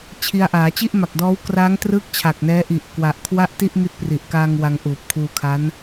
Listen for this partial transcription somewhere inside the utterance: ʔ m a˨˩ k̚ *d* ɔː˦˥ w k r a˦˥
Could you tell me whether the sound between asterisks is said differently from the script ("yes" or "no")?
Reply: no